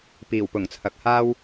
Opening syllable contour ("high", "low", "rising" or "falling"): low